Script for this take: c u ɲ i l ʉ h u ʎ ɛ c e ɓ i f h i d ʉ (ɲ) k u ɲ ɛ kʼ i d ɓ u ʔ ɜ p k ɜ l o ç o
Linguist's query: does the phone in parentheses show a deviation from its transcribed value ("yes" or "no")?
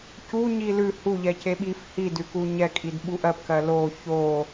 yes